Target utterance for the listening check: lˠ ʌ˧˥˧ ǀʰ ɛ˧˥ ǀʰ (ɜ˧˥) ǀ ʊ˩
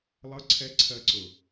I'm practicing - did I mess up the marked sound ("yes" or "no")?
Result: no